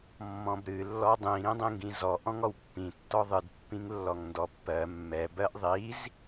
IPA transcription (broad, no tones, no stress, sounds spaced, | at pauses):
mː ɔ̃ b ɾ ɨ lː ɔ dˤ ĩ ɾ ĩ dˤ ĩ ŋ ɡ ĩ z ɔ ʔ ɔ̃ ŋ ɔ w pː ĩ tː ɔ ðˤ ɨ d pː ĩ ŋ lː ɔ ŋ n d ɔ pː ɜ mː ɛ b ɜ ʔ ðˤ i z